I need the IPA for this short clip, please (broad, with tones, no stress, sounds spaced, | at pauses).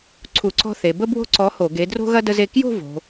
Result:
ǀʰ u˧˩˧ ǀ ɔ̤˥ θ e˩˧ b ə˥ b w o̤˥˧ ǀ ɔ˨˥ h o˧˩˧ ɡ e˨˥ d r o̤˥ ɣ ɐ˥ d ə˥ z e˥˧ k j o̤˥˧ v o̤˩˧